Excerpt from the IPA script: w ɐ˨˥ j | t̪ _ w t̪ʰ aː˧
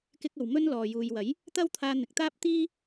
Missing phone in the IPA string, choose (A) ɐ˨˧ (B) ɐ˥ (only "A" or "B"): B